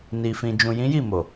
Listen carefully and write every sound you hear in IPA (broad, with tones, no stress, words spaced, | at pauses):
ni˧fĩ˧ d͡ʒũ˨jĩ˨˦ ji˦˨mo˨